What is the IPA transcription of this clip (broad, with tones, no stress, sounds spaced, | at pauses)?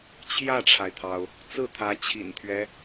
t͡ɕʰ j ä˥˩ ʈ͡ʂʰ a˩ ɪ̯ t̪ʰ ɑ˩ ʊ̯ | t͡s ɹ̩˥˩ t̪ʰ ä˧˥ t͡ɕʰ ḭ˨˩ n t̪ʰ ɥ ɛ˦